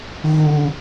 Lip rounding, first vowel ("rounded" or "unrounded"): rounded